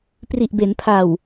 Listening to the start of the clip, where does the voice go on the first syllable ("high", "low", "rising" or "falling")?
low